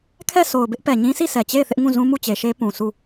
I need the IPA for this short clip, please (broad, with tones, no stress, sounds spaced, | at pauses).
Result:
kʰ ɛ˦˨ s o˨ ʊ̯ b ɪ˦ ʔ p ɛ˨ ɲ ĩ˦ s i˦˨ sʰ ɛ˨ t͡ɕ e˦˨ ɪ̯ θ ɪ˦ ʔ ŋ ũ˦˨ z ũ˦ m u˦˨ t͡ɕ e˨ ʃ e˦ p ũ˨ sʰ u˦˨